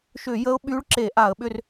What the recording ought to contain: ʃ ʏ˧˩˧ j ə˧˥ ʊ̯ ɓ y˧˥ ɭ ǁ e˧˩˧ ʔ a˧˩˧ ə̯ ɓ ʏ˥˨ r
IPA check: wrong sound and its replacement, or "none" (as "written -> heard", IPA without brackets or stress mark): none